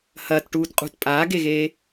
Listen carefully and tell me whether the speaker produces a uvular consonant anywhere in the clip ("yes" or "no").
yes